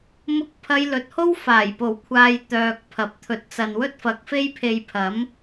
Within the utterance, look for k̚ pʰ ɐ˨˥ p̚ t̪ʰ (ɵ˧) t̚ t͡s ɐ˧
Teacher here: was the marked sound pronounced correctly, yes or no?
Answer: yes